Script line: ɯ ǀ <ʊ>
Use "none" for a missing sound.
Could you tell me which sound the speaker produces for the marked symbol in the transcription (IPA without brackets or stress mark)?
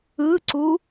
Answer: u